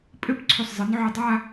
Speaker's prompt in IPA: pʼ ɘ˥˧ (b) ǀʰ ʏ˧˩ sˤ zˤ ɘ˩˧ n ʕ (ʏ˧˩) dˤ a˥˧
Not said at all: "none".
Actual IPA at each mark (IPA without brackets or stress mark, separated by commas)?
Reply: b, ʏ˧˩